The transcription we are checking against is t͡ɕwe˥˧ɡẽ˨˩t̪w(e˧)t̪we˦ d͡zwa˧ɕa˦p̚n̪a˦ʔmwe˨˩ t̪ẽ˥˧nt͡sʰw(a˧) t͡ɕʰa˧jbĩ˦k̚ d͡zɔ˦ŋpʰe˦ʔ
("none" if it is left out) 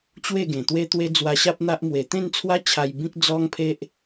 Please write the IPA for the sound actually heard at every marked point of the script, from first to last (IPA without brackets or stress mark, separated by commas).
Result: e˦, a˦